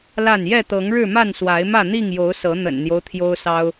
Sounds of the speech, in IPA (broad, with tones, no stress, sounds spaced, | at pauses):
l a˥˨ n j ɛ˥˨ t̪ ɤ˨˦ ŋ ɻ ɻ̩˥˨ m a˥˨ n s w a˨˦ ɪ̯ m ä˥˨ n̪ i˥˨ ŋ j o˨˦ ʊ̯ s ɤ˨˦ n̪ ə̰˨˩ n n̪ j o˦ ʊ̯ t̪ʰ j o˦ ʊ̯ s ɑ˦ ʊ̯